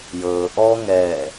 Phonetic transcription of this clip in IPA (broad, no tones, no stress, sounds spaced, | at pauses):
j ɤː ʔ ɔ ŋ ɛː